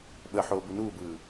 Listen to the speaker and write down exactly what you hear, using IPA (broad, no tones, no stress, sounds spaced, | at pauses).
ɓ ə ħ oː b u n uː b ɯː